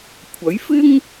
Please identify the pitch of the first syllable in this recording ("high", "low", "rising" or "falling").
rising